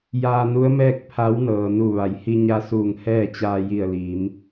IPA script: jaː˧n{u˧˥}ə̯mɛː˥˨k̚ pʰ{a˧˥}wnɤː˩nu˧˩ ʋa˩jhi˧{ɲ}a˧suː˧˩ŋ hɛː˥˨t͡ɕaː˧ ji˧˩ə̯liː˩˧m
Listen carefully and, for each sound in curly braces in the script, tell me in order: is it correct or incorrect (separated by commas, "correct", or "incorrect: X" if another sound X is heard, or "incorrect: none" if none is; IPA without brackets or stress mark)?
correct, correct, correct